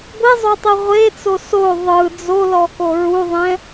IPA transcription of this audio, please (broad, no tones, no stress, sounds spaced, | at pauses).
ɡʷ i zˤ o tˤ i ʁʷ e t͡s o s o ðˤ ɯ d͡z o l ɔ k o ɹ u ðˤ ɛ̃